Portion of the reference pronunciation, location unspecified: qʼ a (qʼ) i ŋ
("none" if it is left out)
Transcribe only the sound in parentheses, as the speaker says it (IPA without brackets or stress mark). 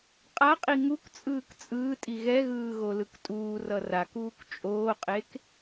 qʼ